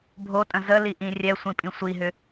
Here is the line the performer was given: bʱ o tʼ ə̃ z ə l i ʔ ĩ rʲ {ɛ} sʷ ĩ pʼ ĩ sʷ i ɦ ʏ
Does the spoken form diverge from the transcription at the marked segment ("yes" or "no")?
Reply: no